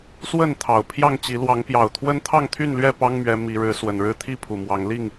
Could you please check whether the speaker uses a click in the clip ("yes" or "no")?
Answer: no